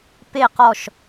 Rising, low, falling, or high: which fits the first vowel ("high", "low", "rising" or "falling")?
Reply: falling